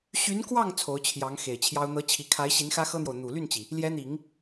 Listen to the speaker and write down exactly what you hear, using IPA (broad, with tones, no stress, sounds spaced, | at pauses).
ɕ y˧˥ n k w ɑ˥˩ ŋ t͡sʰ o˧˥ ʊ̯ t͡ɕʰ j ɑ˧˥ ŋ x e˨˩ ɪ̯ t͡ɕʰ j ɑ˥ ʊ̯ n̪ ɤ˧˥ t͡ɕʰ i˨˩ kʰ a˧˥ ɪ̯ ɕ i˧˥ n x ä˥ x ɤ˥ n̪ j o˨ ʊ̯ n̪ u˨˩ l y˥˩ n t͡ɕ i˩ | l j ɛ˧˥ n̪ i˨˩˦ ŋ